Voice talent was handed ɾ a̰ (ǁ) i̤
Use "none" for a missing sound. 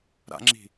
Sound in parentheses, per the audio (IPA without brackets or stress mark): ŋ͡ǁ